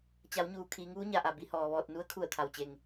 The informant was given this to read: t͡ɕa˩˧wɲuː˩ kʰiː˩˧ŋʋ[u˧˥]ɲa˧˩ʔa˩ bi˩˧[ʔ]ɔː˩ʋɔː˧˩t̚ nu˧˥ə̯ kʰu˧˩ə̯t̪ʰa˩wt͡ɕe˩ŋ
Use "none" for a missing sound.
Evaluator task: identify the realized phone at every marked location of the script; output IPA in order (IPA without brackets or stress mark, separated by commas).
u˧˥, h